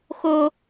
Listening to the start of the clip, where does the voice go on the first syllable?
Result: high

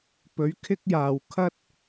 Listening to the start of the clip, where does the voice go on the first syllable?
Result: rising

